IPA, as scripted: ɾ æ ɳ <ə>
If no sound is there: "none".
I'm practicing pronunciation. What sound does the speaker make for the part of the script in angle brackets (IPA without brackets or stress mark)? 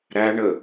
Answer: ə